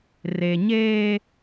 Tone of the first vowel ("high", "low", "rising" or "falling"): low